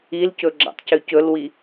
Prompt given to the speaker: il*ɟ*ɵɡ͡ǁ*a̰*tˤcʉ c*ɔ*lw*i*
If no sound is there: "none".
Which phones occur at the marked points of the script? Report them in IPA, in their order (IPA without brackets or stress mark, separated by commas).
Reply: c, a̰, ɵ, i